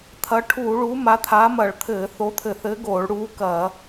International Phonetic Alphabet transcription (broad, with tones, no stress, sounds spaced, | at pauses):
t̪ʰ ɐ˨˥ ʈʰ uː˧˩˧ ɭ uː˨˥ m a˨˥ t̪ʰ aː˨˥ m ɐ˧˩˧ ɭ t̪ʰ ɘː˧˩˧ θ o˨˥ t̪ʰ ɘ˧˩˧ θ ɘː˨˥ ɡ oː˧˩˧ ɭ ɽ uː˨˥ k ɐː˧˩˧